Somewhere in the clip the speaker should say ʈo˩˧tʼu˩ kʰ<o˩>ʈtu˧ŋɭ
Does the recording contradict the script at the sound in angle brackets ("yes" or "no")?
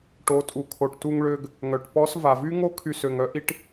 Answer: no